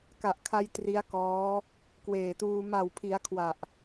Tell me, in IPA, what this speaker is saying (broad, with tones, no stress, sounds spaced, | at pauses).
k a˨˩ ʔ kʰ a˧ j t r i˦˥ a̯ k ɔː˦˥ | k w eː˨˩ t uː˧ m a˨˩ w pʰ i˩˦ a̯ kʰ w a˨˩ ʔ